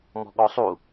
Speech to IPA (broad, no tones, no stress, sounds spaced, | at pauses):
m ɔ̤ ɠ ɔ sˤ u